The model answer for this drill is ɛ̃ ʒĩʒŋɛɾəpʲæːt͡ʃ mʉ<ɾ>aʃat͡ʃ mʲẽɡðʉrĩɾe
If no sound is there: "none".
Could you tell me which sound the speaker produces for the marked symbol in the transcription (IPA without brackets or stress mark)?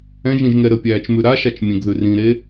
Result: ɾ